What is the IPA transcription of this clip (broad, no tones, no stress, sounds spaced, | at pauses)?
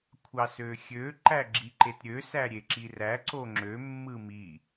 kʷʰ ɑ s ø xʲ ø ǃ æ ɡ͡ǁ i ǃ e t ɾʲ ø s æ ɾʲ e ǁ i r æ ǀ o ŋ͡ǁ ø mː ɯ m i